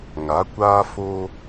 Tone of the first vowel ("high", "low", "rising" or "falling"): rising